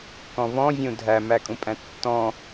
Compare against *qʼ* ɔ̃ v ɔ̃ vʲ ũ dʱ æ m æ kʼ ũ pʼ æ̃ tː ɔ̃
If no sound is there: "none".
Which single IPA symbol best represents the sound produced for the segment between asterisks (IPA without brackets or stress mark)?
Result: k